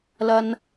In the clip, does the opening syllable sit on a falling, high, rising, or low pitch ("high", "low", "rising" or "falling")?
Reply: low